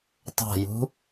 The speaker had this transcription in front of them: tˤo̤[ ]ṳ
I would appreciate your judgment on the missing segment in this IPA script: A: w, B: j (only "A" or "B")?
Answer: B